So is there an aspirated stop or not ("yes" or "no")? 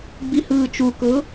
no